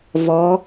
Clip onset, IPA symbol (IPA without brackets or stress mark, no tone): v